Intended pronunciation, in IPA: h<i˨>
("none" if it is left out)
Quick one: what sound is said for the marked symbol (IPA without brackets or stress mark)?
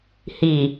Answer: i˨